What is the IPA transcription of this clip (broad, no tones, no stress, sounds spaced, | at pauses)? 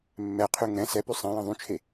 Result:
mː ɛ qʰ ʉ ŋ ɛ̃ s ɛ p ʉ sˤ ɛ̃ j ɛ̃ ðˤ ũ t͡ʃʰ e